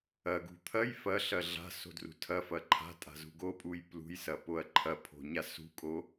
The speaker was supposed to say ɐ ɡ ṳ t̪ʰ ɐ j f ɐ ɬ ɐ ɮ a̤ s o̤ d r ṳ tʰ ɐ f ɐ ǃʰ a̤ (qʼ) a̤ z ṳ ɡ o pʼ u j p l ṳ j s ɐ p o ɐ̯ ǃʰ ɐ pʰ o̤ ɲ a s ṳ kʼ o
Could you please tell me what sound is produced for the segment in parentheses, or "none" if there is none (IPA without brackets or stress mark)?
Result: tʼ